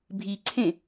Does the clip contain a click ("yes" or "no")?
yes